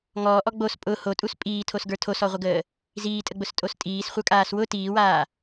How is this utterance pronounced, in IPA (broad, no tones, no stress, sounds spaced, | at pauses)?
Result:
ŋ ɔː ʔ ɔ ɡ͡b o s pʼ ʊ h o tʼ u s pʼ iː tʰ o s ɡ ə˞ tʰ o s ɔ ʁʷ ə ɡ əː | z iː tʼ ə ɡ͡b ʊ s tʼ o s tʼ iː s χʷ ə˞ kʼ aː s w ʊ t iː w aː